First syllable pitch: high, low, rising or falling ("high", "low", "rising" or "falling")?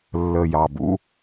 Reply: low